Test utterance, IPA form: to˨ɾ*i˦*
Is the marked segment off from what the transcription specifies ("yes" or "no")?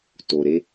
yes